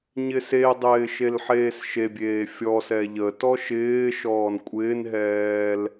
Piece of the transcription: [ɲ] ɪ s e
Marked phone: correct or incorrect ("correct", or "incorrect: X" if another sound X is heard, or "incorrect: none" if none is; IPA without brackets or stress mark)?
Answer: correct